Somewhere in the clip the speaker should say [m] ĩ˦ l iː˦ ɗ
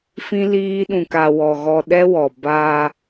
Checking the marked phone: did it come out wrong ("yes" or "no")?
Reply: yes